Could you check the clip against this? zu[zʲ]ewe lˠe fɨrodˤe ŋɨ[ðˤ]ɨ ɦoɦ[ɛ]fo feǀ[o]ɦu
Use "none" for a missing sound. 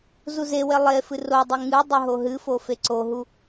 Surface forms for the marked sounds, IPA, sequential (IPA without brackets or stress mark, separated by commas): z, dˤ, ɨ, o